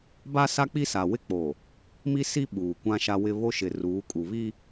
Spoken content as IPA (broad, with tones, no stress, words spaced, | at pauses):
ba˦sa˦ k͡pi˦sa˨wɪ˦ k͡po˨ | mi˦si˦ ɓuː˨kʷã˦ʃa˦wɪ˦ βo˦ʃɪ˨ruː˨˦ kʼu˨βi˦